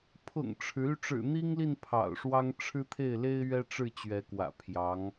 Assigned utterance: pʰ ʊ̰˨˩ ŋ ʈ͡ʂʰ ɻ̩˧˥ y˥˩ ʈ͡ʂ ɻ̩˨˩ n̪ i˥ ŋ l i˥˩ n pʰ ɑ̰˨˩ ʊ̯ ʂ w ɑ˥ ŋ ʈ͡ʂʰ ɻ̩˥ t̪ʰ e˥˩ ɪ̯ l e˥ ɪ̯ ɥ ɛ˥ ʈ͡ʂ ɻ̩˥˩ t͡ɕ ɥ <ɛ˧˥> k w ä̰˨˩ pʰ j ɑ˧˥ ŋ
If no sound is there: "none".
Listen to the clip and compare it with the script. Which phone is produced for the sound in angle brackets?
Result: ɛ˧˥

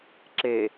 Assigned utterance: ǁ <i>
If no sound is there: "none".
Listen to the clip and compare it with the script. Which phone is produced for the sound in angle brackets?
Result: e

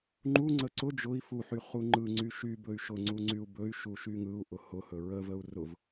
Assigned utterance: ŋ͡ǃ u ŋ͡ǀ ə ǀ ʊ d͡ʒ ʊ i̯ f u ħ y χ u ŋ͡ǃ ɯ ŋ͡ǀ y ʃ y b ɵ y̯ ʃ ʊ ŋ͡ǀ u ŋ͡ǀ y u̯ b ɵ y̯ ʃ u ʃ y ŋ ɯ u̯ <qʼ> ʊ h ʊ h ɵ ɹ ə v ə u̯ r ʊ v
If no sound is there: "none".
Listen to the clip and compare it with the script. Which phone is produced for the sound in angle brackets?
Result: ʔ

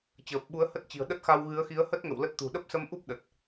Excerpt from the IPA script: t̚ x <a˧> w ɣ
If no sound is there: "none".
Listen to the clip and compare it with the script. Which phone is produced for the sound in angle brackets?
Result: a˧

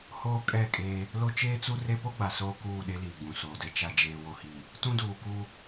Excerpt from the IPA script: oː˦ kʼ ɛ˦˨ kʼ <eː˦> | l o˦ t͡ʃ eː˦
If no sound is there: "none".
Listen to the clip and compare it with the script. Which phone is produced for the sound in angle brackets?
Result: eː˦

